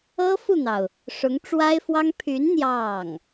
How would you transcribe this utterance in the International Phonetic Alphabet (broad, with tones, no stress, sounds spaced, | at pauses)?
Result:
ɤ˥ f u˥˩ n̪ ɑ˩ ʊ̯ | ʂ ʊ˧˥ ŋ ʈ͡ʂ w a˥ ɪ̯ f w ɑ˥ ŋ pʰ y˧˥ n n̪ j ɑ˥˩ ŋ